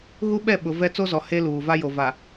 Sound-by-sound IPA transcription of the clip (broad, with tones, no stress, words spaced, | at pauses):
ɣu˦ɓɛ˦˨ɓʊ˨ vɛ˦ t͡so˦zɔ˨ he˦luː˨va˦ jo˨va˨